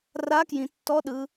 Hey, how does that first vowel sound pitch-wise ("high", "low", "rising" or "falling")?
rising